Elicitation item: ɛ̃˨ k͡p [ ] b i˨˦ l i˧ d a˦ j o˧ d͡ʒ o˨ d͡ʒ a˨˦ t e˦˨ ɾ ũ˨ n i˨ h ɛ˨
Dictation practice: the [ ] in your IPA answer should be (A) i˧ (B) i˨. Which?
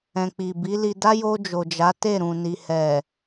B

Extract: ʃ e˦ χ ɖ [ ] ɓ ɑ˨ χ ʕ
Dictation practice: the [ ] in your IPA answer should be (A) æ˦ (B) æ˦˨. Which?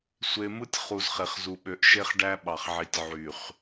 A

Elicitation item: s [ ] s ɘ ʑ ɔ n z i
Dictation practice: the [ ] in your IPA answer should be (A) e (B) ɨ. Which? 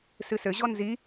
B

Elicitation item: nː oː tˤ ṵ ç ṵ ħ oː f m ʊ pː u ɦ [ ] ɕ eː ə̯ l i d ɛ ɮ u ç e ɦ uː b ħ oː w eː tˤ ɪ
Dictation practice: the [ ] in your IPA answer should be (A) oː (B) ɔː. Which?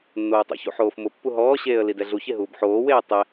B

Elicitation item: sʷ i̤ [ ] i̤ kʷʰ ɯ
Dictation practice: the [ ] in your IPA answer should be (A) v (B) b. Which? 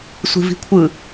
A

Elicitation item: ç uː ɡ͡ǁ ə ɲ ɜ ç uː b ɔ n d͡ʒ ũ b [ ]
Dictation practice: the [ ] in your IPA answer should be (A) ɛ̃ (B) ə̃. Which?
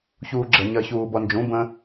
B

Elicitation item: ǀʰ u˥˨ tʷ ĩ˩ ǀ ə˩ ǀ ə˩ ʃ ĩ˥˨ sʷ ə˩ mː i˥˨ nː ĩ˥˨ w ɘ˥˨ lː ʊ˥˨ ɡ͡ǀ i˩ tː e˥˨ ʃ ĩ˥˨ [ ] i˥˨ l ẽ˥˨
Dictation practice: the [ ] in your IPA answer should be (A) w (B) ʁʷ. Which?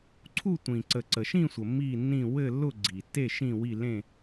A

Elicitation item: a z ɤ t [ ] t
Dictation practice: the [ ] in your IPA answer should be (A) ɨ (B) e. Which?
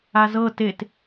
B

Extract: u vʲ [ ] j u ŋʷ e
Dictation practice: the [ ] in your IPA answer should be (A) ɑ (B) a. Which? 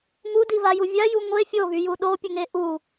B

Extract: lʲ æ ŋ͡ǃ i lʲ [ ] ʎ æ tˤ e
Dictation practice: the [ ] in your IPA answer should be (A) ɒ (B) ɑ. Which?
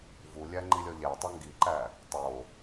A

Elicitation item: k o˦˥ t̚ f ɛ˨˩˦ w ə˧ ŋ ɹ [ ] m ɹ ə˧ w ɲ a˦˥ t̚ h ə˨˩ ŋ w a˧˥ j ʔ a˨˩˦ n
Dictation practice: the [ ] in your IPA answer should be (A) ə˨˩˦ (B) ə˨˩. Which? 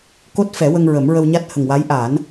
A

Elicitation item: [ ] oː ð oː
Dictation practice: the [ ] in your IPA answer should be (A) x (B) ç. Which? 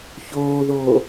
B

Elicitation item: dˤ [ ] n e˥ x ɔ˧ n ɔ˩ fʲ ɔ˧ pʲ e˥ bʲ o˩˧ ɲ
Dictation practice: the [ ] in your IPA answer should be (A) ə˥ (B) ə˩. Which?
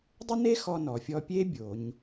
A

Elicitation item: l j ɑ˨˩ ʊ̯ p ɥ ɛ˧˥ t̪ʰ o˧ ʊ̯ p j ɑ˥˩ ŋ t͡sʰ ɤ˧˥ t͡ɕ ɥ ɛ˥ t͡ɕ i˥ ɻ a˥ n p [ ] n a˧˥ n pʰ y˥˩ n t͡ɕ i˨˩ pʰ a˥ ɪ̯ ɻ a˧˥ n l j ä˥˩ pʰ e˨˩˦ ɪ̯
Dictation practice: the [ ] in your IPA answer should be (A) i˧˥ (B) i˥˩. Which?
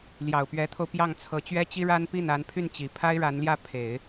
B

